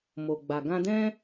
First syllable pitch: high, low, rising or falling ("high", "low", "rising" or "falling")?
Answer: low